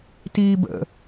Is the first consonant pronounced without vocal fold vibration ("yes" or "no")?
yes